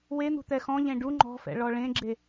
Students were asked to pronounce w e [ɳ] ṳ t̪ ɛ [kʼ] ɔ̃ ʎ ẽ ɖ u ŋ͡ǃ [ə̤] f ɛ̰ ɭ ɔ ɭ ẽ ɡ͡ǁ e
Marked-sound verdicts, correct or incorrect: incorrect, incorrect, incorrect

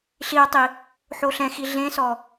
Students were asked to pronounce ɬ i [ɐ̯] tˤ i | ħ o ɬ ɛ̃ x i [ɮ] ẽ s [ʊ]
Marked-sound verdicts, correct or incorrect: correct, correct, incorrect

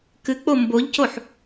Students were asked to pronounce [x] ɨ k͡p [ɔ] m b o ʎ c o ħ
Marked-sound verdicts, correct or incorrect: incorrect, incorrect

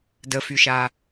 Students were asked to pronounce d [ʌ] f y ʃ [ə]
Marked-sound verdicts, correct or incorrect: incorrect, incorrect

